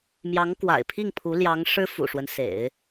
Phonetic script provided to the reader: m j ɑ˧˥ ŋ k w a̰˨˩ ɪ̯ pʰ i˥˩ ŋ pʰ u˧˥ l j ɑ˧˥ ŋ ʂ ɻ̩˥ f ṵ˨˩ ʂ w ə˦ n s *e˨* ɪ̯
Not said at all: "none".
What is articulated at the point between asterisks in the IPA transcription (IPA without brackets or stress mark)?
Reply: ḛ˨˩˦